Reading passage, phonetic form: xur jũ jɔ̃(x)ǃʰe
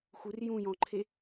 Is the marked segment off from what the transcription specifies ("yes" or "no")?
yes